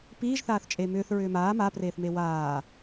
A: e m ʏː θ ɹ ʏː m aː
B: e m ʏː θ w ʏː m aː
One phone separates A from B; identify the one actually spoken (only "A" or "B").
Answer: A